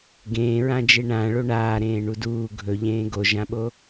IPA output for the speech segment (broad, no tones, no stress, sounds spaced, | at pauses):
ɡ ẽː ɹ ã d͡ʒ e ɳ ã ɭ o ɳ aː ɾ ẽː ɳ u d uː ɡʱ ɵ ʎ ẽː ɡ o ʒ ã ɓ o